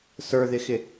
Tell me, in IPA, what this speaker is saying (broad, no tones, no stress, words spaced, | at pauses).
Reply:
sə˞ðɪxɪ